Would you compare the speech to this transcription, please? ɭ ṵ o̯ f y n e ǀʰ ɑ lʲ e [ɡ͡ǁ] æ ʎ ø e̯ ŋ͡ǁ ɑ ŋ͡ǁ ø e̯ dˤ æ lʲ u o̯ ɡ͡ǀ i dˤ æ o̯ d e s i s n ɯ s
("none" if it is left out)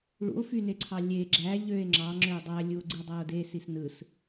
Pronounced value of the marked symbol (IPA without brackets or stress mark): ɡ͡ǁ